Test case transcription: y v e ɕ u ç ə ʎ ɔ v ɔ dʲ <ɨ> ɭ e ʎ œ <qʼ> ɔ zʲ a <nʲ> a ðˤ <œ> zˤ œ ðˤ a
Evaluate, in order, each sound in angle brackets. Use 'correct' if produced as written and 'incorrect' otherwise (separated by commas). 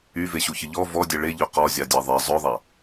incorrect, incorrect, incorrect, incorrect